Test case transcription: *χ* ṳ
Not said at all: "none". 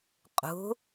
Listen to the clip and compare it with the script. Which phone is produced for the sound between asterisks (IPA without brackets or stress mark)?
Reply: qʼ